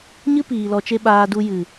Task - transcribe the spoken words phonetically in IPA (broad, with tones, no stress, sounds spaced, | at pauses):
ɲ ɨ˦ p iː˨ l ɔ˨ t͡ʃ e˧ ɓ aː˧ d u˧ j ɨ˨